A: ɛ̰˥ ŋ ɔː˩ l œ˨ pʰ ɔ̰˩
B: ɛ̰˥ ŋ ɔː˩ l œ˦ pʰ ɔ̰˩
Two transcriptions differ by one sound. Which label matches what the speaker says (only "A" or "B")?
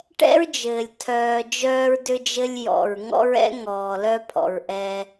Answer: B